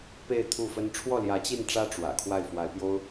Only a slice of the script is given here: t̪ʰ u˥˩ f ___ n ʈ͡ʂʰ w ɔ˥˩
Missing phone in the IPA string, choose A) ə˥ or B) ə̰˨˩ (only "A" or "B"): A